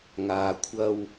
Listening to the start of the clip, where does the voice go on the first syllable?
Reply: low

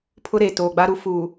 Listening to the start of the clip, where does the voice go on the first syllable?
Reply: high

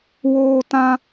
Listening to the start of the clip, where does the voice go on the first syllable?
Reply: high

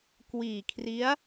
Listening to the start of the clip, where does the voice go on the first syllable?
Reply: low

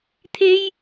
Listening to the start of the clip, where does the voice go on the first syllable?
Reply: high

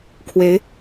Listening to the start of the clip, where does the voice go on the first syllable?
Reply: rising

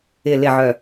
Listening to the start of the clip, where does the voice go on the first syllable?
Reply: low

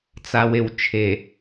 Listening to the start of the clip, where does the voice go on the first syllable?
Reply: low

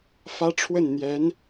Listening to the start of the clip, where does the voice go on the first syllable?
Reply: high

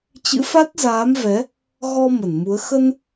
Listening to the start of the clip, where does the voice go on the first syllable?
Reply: rising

